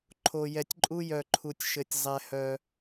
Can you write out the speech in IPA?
ǃʰ o˨ j ɛ˨ tʲ ǃʼ u˦ j œ˨ ǃʰ u˨ tʲ ʃ ɘ˨ tʲ zˤ ɛ˨ h œ˨

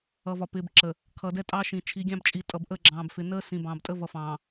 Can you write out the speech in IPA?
ʌ˨ v ɒ˨ p ɪː˨ b ǁ ə˨ | kʰ ʌ˨ d ɛ˦ tʼ ɑ˦ ʃ ĩ˨ t͡ʃʰ i˨˦ ɡʲ ɑ̃˦ b t͡ʃʼ i˨ tʼ ʌ˨ b ʔ əː˦˨ ɡ͡ǁ ɑ̃ː˨ b f ɪ˨ n əː˦ s ĩ˨ b ɑ̃ː˨ b tʼ əː˦ v ʌ˨ f ɑ̃ː˨

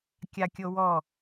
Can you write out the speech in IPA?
kʲ a kʲ o w ɔ

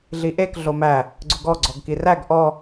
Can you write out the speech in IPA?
ɮ i ʔ e k ɮ o m æ | ɡ͡ǀ ʊ ɡ ɔ ɡ͡ǀ ɔ ɡ k i r æ ɡ ʔ ɔ

